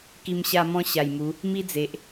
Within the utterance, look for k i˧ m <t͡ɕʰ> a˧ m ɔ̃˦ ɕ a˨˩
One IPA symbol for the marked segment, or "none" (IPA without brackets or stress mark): ɕ